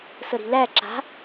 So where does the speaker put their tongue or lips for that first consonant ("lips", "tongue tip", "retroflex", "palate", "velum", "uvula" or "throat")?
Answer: tongue tip